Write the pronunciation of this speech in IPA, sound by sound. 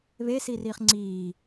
β e s i r iː χ ŋ͡ǀ iː

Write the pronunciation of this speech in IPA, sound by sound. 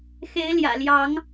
x e˨˦ ɪ̯ l j ä̰˨˩ l j ɑ˨˦ ŋ

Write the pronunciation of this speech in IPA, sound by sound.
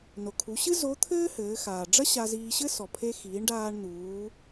n o˩ kʰ u˩˧ ɕ ɨ˥ z o˧˥ t̪ʰ ɘː˥ h ɘː˩˧ x aː˩ ɖ͡ʐ ɐ˥ ɕ a˧ z iː˧ ɕ ɘ˥ s ɔ˩ pʰ e˧ x iː˩˧ ɳ ɖ aː˧ ɳ n̪ uː˩˧

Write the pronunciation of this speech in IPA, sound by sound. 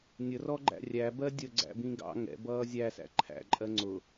nʲ ə r ɔ ɡ͡ǃ æ̰ rʲ æ b ɜ dʲ ə ɡ͡ǀ æ̰ b ĩ ɡ ɑ̰ ŋ ɛ̰ b ʌː zʲ æ s æ̰ ǃʰ æ̰ ǃʼ ɜ ŋ͡ǀ ʊ

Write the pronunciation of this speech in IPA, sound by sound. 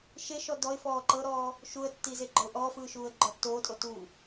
ʃ e ʃ ɔ d ɔ ɪ̯ f ɔː ǃ ɤ ɾ ɔː | ʃ u ə̯ tː i z e ɡ͡ǃ ɔ ʊ̯ ʔ ɔː f ɯː ʃ uː ə̯ ɡ͡ǃ ɔ tː oː tʼ o t uː

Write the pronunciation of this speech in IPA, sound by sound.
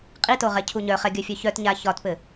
qʼ i t o ʁ ɛ cʰ u ɲ œ χ ɛ ɡʲ œ fʲ œ ç œ t ɲ a ç ɒ t p ɘ

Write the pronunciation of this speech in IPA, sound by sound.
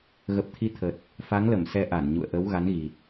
ɣ ə˨˩ p̚ t̪ʰ i˨˦ t̪ʰ ə˨˩ t̚ | f a˨˦ ŋ l ə˧˩ m s ɛ˧ ʔ a˧˩ n ɲ ṵ˧˨ ə̯ ʔ ə˨˦ w ɣ a˨˦ n ɣ i˨˩ t̚

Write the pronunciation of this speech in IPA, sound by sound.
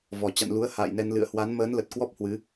v ɔ˧˩ t͡ɕ a̰˧˨ n l u˨˦ ə̯ h a̰ː˧˨ j n ɛ˧ n l ɨ̰˧˨ ə̯ h w a˨˦ n m əː˨˦ n l ə˨˩ t̚ k w ɔ˦˥ p̚ h w ɨ˨˦

